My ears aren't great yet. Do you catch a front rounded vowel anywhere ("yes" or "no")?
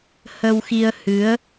no